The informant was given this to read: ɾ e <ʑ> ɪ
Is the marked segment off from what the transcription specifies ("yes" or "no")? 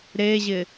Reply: no